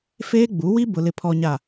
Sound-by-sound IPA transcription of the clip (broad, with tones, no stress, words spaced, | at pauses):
feː˦ɡ͡bu˨˦wi˦ bʊ˨lɪ˨pʰɔ˨ɲa˨